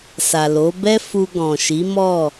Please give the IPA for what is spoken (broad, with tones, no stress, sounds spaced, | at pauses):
s a˨ l o˨˦ b ɛ˦ f u˧ ɡ ɔ̃˨ ʃ i˨˦ m ɔ˦˨